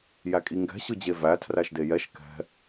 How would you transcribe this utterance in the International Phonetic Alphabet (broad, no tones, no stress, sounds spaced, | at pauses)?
j æ kʼ i ŋ ɡ ɛ̤ ɕ ɯ d͡ʑ e v æ tʰ r æ ʃ d e j ɛ ʃ k ɛ̤